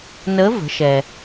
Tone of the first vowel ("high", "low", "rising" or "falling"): rising